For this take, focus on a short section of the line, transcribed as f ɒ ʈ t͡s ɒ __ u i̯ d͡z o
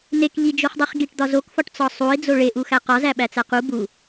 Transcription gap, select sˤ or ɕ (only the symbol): sˤ